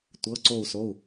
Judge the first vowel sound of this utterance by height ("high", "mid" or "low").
mid